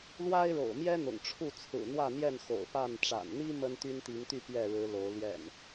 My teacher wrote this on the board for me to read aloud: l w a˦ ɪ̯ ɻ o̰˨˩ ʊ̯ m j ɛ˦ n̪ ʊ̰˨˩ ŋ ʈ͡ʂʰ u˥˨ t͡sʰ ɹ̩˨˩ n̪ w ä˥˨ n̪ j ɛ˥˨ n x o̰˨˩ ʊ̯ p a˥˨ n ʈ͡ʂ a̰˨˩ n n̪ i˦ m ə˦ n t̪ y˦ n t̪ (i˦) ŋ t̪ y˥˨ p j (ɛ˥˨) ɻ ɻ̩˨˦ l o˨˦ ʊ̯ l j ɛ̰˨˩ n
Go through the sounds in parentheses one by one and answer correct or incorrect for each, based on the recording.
incorrect: i˨˦, correct

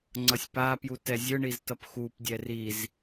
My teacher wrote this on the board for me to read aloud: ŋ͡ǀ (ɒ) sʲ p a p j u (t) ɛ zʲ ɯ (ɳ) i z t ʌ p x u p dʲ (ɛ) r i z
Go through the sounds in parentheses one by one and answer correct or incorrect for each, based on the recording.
incorrect: ʌ, correct, correct, correct

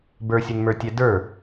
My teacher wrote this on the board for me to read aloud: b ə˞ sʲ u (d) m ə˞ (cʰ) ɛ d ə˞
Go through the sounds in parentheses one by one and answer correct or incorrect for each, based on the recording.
incorrect: n, incorrect: tʲ

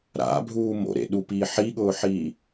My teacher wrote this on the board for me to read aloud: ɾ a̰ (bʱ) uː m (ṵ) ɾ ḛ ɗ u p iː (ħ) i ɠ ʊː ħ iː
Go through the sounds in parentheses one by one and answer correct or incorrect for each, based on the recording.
correct, incorrect: o̰, correct

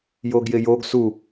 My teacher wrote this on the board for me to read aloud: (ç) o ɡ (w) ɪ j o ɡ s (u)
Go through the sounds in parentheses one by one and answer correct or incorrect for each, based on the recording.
incorrect: j, incorrect: j, correct

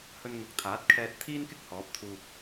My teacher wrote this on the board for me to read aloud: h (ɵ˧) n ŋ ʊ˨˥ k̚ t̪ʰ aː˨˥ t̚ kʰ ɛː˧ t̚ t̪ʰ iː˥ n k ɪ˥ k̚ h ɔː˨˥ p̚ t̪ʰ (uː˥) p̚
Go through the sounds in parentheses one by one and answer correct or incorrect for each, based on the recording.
correct, incorrect: uː˧

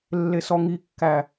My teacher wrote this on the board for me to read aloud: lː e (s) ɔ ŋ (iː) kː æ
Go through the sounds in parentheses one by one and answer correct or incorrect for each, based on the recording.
correct, incorrect: i

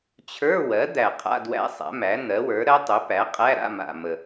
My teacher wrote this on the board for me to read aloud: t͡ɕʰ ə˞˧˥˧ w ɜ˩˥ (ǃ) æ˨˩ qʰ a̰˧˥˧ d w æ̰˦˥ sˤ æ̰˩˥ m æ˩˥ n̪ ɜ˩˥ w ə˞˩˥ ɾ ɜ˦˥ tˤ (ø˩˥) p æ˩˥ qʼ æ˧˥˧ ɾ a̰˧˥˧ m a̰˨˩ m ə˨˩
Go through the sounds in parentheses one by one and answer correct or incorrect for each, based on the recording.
incorrect: d̪, correct

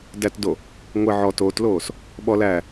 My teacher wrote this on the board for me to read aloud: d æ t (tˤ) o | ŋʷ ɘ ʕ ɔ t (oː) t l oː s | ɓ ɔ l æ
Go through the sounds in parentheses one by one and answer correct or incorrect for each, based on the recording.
incorrect: d, correct

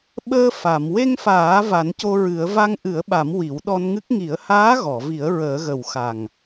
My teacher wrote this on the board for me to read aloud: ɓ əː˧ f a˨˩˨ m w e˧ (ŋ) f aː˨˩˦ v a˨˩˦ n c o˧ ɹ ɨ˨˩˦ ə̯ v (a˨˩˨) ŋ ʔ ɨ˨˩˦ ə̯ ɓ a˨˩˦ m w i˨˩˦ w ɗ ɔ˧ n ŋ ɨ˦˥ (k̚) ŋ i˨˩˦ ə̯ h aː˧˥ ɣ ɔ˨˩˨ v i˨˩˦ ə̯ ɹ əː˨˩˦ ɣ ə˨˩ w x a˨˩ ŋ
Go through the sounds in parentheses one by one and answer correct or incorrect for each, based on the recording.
correct, incorrect: a˧, correct

